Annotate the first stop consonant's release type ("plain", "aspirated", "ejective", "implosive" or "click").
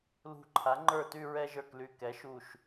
click